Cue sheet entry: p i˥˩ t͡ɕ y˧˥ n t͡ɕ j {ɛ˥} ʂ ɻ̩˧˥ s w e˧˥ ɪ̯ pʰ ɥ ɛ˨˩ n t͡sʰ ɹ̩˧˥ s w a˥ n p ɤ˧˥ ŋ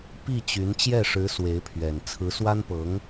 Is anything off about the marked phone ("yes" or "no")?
yes